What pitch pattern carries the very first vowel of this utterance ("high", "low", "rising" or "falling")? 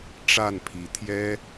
falling